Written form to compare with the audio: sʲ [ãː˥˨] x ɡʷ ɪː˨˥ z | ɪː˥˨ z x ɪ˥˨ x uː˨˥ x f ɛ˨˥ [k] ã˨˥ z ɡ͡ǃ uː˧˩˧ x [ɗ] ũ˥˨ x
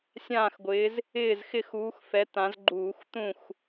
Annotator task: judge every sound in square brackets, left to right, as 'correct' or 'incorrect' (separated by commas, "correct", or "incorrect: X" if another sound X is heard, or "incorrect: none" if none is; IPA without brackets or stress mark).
correct, incorrect: t̪, incorrect: t̪